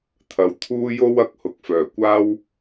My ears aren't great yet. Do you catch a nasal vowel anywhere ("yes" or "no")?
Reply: no